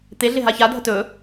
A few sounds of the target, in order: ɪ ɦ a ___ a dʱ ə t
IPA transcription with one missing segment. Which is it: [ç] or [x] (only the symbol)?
ç